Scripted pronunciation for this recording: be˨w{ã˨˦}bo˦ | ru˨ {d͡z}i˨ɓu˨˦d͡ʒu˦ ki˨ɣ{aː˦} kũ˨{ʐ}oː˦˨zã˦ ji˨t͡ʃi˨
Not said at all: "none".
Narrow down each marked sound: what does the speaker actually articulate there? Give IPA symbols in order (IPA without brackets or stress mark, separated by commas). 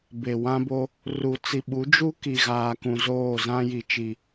ã˦, t͡s, aː˨, z